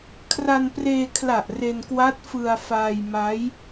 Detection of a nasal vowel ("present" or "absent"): absent